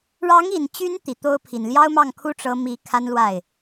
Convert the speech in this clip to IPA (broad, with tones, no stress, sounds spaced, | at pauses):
ɻ ɑ˧˥ ŋ i˨˩ n t͡ɕ y˧˥ n t̪ i˨˩ t̪ o˥ ʊ̯ pʰ i˨˩ n l j ɑ˥ ʊ̯ m ɑ˥˩ ŋ kʰ u˥ ʈ͡ʂ ɤ˧˥ m i˧˥ kʰ a˥ n l w a˥˩ ɪ̯